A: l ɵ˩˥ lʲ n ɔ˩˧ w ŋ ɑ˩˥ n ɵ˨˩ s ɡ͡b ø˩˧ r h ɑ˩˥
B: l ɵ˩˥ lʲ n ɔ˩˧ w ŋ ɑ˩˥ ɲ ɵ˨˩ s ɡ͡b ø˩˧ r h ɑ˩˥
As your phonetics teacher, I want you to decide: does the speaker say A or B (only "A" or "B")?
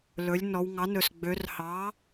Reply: A